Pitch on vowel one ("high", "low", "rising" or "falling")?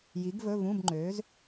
rising